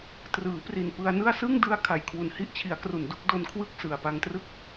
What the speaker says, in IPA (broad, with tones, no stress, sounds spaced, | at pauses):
t r ɯː˩˦ p r i˨˩ n p ɯ˧ a̯ n ɯ˥˩ a̯ s ɯ˥˩ ŋ d ɯ˧ a̯ kʰ a˨˩ j kʰ w u˨˩ n h i˥˩ ʔ t͡ɕʰ i˩˦ a̯ k r u˨˩ n d u˦˥ k̚ d o˧ n kʰ w ɯ˥˩ k̚ s ɯ˨˩ a̯ p a˧ ŋ t r ɯ˥˩ k̚